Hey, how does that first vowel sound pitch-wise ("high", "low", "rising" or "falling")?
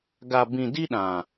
low